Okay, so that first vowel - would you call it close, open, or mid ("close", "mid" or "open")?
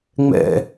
mid